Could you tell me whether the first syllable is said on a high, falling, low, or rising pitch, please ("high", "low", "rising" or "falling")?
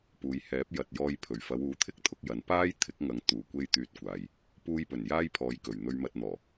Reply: low